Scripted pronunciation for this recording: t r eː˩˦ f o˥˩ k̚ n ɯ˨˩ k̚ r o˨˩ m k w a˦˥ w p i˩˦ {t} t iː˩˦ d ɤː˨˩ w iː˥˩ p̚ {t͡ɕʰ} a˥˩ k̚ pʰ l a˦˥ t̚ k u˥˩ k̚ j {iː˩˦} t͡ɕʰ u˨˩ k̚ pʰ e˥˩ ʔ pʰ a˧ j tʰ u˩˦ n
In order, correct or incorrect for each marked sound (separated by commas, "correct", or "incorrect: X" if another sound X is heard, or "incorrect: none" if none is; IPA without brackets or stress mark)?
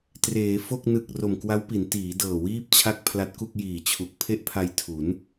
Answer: incorrect: n, correct, incorrect: iː˨˩